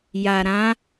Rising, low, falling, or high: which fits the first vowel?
low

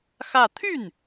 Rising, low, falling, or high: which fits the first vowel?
falling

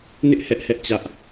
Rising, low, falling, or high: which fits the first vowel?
high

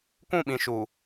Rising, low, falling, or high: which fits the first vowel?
falling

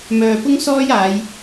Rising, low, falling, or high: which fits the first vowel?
low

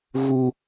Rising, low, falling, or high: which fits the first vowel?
high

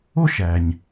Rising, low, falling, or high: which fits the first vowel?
high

